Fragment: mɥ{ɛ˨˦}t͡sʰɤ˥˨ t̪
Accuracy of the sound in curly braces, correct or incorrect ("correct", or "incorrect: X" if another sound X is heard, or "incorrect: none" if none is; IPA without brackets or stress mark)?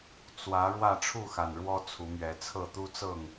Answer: correct